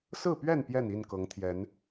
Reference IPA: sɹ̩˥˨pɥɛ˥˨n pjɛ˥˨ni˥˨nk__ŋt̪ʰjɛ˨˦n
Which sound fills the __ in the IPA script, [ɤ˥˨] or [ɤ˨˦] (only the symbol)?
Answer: ɤ˨˦